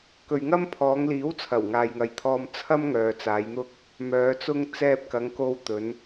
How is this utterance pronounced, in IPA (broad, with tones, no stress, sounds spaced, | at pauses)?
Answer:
k ɵ˨ ɥ ŋ ɐ˥ m pʰ ɔː˨˧ ŋ l iː˨˥ w t͡sʰ ɐ˨˩ w ŋ aː˨ j ŋ ɐ˨˧ j t̪ʰ ɔː˧ m t͡sʰ ɐ˥ m ŋ œː˨ t͡s aː˨˧ j n̪ ʊ˥ k̚ | m œː˨˧ t͡s ʊ˥ ŋ t͡s ɛː˧ p̚ k ɐ˨˧ ŋ k o˧ w t̪ ɵ˨˧ n